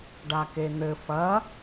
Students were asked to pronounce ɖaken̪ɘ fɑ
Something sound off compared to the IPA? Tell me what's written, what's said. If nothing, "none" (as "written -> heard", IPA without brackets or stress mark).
ɑ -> ɐ